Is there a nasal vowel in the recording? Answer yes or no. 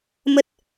no